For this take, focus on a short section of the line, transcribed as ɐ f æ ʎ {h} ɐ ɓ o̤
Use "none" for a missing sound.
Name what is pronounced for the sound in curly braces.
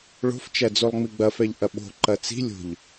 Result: ʔ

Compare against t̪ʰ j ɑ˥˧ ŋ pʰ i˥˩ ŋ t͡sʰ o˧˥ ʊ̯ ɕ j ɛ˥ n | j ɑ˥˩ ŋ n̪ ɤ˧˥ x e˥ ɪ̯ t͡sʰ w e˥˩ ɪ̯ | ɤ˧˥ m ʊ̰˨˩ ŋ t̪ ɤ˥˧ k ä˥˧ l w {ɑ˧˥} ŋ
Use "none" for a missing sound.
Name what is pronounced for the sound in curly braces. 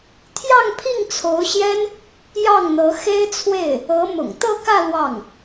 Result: ɑ˥˩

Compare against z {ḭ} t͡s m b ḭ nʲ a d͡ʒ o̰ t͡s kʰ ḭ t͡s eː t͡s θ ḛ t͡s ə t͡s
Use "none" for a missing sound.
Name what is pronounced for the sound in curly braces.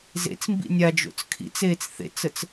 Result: ḛ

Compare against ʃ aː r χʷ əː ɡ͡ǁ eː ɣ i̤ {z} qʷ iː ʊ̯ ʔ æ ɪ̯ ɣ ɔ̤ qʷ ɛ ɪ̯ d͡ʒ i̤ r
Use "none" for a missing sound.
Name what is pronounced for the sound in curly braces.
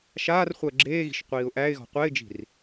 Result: ʃ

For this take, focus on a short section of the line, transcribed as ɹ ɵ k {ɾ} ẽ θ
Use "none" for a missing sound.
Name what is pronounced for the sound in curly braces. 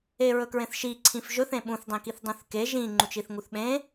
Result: ɹ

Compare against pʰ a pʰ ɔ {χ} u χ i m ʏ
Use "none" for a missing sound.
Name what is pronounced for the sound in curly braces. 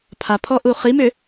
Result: ʔ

